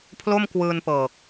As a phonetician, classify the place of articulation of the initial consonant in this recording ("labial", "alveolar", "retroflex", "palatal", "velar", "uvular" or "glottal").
labial